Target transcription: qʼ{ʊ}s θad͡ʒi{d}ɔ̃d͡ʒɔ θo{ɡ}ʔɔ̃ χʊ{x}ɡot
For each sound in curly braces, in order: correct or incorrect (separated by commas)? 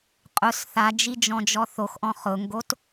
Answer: correct, incorrect, incorrect, incorrect